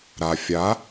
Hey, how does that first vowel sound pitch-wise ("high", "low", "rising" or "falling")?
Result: low